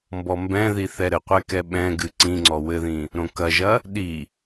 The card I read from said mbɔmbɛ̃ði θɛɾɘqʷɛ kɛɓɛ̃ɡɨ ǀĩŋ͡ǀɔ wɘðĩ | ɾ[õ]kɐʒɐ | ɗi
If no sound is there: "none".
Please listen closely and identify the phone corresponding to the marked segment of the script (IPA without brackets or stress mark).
õ